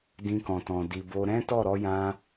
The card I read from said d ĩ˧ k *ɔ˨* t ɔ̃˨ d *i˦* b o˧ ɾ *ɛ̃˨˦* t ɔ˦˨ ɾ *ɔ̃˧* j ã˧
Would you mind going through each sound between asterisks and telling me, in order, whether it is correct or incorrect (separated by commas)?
incorrect, incorrect, incorrect, incorrect